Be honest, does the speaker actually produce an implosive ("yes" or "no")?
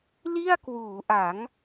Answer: no